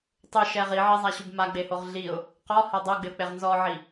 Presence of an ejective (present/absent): absent